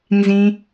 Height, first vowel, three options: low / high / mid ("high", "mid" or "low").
high